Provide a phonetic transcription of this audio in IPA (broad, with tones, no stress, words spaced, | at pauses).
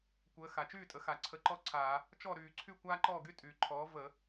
kʷəː˩˥ xa˩t͡ʃyː˥˩tʼə˩˥ xa˩ǀʰə˧˩˧ǃɔ˥ǀʰaː˧˩˧ | t͡ʃɔ˥˩ ɾyː˧˩˧ǀʰy˥˩ kʷaː˥ǃɔː˥˩ɡy˥ tʼyː˩ǃʰɔː˩˥ və˧˩˧